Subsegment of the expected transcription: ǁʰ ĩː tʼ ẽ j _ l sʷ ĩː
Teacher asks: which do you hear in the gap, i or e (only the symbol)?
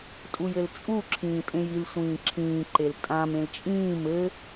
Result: i